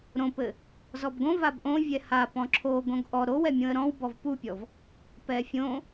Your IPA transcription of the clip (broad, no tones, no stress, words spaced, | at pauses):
ɾõpɘ | zɔbɡõ vabʔõ vʲɛha pɔ̃ǁʰo ɡõɡʔɔ ɾow ɛmʲõə̯ɾɔ̃w bɔvpupʲɔv | pɛfʲõ